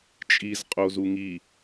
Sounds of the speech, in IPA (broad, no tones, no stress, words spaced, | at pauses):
t͡ʃʼizqʼozu ŋi